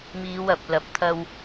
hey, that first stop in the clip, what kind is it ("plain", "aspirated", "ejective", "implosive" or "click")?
plain